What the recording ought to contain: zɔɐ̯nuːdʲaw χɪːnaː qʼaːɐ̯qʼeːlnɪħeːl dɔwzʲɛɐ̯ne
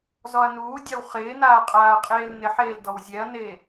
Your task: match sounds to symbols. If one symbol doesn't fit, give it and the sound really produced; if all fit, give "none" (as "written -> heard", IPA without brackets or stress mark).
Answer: none